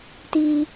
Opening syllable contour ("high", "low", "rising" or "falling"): high